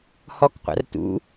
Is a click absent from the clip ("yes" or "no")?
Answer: yes